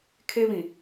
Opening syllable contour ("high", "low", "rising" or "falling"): high